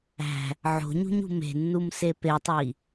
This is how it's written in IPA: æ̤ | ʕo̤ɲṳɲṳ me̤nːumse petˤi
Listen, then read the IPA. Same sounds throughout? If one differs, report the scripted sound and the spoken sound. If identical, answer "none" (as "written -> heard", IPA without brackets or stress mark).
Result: none